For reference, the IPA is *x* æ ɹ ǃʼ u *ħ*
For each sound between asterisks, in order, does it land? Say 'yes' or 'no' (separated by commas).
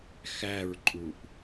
yes, no